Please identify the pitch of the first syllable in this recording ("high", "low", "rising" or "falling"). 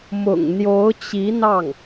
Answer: low